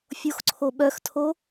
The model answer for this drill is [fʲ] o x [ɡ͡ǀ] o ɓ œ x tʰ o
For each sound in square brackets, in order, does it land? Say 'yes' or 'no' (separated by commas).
yes, no